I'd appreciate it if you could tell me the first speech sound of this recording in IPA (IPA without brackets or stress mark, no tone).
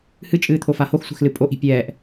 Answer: h